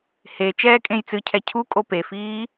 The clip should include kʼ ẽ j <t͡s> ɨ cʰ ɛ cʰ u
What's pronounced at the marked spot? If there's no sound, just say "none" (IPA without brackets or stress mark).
t͡s